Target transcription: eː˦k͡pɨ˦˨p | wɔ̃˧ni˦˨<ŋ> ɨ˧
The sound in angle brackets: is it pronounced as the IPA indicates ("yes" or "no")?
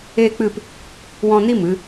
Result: no